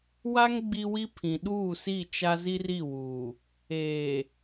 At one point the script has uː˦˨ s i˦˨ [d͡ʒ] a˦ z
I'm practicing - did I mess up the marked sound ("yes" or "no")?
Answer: yes